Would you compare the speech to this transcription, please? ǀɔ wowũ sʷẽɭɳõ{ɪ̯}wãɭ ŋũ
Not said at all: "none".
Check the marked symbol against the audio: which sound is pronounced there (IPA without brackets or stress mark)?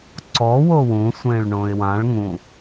ɪ̯